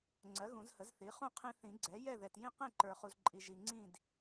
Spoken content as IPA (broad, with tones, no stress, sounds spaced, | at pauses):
ŋ͡ǀ ɜ˩˥ ɣ ũ˨˩˦ z h ə˩˥ z θ i˩˥ χ ũ˥˨ qʰ ĩ˦ θ ĩ˨˩˦ ɡ͡ǀ ɛ˩˥ j ɛ˥˨ ð ɛ˨ t j ĩ˥˨ q ẽ˥˨ ǃ ə˞˨ χ u˨ z ǃʼ i˨ ʒ i˨ ŋ͡ǀ ĩ˥˨ d